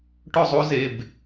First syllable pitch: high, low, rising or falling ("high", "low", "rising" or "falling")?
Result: falling